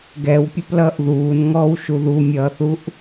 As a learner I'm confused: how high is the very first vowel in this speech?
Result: mid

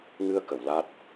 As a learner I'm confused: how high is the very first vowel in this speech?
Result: high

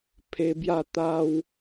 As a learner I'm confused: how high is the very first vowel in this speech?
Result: mid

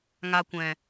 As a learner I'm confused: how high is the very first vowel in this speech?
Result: low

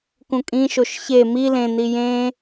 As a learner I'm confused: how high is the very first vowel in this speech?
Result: high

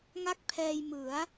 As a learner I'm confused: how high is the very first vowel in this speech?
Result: low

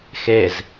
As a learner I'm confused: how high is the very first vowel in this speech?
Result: mid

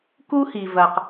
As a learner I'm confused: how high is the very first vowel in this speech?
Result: high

